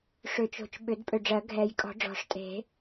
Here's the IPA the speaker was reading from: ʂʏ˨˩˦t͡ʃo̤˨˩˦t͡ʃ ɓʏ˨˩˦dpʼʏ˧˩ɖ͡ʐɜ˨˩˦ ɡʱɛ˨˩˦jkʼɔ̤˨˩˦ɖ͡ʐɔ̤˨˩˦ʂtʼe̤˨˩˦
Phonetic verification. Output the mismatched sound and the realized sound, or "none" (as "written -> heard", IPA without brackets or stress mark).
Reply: none